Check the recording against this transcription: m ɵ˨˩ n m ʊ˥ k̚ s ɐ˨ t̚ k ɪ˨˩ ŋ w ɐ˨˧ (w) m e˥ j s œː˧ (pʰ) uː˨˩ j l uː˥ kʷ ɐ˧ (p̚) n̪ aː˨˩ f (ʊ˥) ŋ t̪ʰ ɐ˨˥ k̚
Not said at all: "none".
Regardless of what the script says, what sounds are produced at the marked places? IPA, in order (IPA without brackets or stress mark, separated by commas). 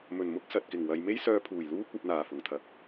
j, pʰ, p̚, ʊ˨˩